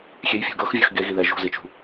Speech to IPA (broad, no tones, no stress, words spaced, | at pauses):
xʲejfʲṳ ɡɤxvʲɤx ɡeɣiðɛ ʒṳzit͡ʃṳ